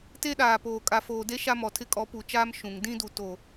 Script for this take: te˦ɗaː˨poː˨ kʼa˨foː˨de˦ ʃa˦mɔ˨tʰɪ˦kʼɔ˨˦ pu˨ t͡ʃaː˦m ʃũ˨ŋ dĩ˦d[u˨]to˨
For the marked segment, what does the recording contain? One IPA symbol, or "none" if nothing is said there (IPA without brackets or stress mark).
u˨